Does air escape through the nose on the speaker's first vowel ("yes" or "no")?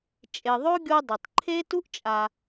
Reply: no